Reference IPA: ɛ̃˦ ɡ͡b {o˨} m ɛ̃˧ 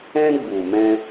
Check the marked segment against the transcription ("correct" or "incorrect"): incorrect